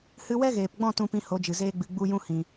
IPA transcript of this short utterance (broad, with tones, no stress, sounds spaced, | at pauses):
h ɨ˧ w ɛ˦ ɣ eː˨ p ɡ͡b ɔ̃˦˨ t ũ˧ p ĩ˧ h o˨˦ d͡ʒ ɨ˨ z eː˦ ɡ͡b ɨ˧ ɡ͡b u˦ j ũ˦ h ĩ˨